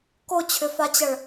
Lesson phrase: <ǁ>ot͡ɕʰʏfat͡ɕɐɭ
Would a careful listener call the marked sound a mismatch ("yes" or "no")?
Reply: yes